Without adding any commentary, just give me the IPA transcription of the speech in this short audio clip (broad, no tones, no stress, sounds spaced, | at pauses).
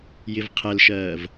j ɪ v qʰ ɛ l ʃ ɜː v